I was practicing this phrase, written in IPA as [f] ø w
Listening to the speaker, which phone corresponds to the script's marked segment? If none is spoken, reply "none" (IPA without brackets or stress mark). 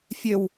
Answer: fʲ